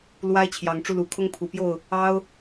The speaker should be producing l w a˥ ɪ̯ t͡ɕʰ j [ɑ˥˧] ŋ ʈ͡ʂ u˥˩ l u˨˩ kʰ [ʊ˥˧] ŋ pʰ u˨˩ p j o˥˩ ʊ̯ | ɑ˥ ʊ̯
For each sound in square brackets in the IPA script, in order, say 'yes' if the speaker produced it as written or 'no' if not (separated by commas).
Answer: no, no